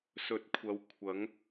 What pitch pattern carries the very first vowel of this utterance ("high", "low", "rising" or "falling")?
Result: rising